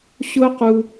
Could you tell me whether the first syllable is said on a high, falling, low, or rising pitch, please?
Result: high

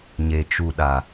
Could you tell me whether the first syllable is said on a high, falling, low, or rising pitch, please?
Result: low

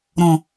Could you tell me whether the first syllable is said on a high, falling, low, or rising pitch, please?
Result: low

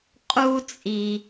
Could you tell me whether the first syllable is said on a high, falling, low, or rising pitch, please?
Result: high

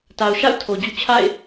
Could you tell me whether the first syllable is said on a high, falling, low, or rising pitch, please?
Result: low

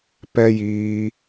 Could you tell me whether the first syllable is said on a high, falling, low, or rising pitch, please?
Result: high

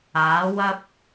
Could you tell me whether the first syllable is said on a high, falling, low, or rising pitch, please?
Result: rising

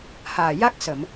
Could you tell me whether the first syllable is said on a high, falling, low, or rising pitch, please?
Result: low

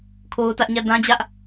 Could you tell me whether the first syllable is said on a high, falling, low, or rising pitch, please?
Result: high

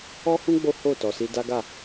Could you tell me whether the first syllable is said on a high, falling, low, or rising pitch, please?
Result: high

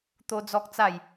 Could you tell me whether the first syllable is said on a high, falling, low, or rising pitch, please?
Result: high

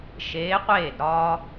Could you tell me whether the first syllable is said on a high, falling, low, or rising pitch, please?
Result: rising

